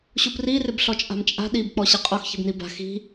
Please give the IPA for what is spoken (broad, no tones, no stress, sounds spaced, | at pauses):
ɕ u p r i r ɪ b ɬ ɔ t͡ʃʼ a̤ m t͡ʃʼ a̤ ɗ i b k͡p ɔ ɕ ɪ qʼ ɔ x ç i̤ b n i b a̤ x i̤